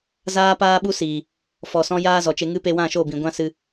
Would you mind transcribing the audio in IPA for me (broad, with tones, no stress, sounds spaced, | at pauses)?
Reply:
z aː˦ p aː˦ ɓ u˦ s iː˨ | f ɔ˨ s ɔ̃˦ j aː˦ z ɔ˨ t͡ʃ e˧ ŋ ɨ˦ p e˧ w ã˦˨ ʃ o˦˨ b ĩ˨ ɡʷ ã˦ s ɨ˧